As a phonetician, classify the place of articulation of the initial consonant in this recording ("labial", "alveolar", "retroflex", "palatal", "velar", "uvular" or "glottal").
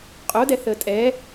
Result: uvular